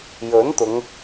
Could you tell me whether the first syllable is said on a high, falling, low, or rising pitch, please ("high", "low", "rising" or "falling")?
rising